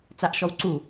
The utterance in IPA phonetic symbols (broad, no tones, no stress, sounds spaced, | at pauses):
t͡s a ʔ ʃ ɔ w ǀ u